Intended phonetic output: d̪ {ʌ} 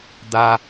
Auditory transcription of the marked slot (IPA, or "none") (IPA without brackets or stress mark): a